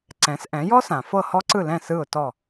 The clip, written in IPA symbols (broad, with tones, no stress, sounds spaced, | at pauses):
ǀ ɛ̃˩˥ s ʔ ɛ̃˩˥ j ɔ˥ s ã˩ f ɤ˥˩ h ɔ˥ ǀ ɯ˥˩ l ɛ̃˥˩ s ɯ˥˩ ʊ̯ t ɔ˥˩